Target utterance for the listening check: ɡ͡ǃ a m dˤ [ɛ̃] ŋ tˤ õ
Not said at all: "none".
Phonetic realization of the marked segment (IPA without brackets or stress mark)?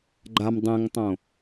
ɛ̃